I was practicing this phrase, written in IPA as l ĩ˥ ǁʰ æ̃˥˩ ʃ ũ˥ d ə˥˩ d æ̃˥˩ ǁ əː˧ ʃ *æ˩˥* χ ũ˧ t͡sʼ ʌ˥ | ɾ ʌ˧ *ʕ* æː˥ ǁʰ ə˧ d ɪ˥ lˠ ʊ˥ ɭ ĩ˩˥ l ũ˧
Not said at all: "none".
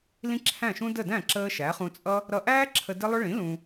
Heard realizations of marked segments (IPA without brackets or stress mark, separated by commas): æ˩˥, ʔ